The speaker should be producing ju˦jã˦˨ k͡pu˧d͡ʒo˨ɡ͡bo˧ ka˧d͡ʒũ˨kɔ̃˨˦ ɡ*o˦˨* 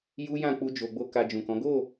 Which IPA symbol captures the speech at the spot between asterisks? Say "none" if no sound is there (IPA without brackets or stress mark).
o˦˨